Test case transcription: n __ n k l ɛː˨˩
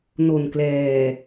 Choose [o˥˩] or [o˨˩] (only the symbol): o˨˩